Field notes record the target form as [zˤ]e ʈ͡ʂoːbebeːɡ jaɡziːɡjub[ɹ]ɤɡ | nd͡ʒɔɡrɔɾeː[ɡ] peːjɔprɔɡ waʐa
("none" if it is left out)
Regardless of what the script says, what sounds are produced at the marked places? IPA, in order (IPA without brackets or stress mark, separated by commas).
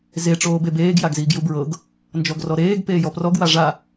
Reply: z, ɹ, ɡ